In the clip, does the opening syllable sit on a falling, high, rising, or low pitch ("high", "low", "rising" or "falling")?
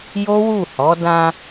high